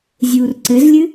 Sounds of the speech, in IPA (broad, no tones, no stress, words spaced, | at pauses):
zʲuːrǀɘzlʲɨ